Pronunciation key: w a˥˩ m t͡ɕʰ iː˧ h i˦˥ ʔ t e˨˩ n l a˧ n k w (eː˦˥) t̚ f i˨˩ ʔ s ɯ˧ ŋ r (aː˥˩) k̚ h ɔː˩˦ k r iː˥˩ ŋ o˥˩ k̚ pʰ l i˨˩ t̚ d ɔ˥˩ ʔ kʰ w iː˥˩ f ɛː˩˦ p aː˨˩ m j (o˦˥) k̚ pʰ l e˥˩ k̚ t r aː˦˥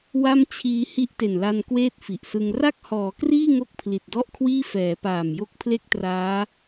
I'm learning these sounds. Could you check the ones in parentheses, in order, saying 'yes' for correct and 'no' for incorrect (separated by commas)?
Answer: no, no, yes